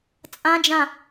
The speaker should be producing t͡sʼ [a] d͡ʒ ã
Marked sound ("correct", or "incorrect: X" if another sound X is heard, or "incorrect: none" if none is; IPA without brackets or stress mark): incorrect: ã